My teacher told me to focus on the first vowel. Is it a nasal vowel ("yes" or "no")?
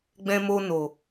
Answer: yes